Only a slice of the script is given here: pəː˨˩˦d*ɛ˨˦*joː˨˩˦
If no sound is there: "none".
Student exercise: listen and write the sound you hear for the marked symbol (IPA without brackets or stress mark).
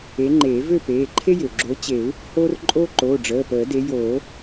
e˨˦